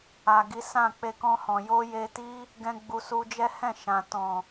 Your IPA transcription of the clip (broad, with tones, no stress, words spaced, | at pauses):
a˨ɡi˨˦ sã˦˨k͡pe˧kɔ̃˧hɔ̃˨ jo˧je˧ti˦ | ɡɛ̃˦ɡ͡bu˧ su˧d͡ʒɛ˦hɛ̃˦˨ ʃã˨ tɔ̃˨